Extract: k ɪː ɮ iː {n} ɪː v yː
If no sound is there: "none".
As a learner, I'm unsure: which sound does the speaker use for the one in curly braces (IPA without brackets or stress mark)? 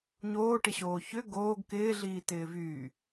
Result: t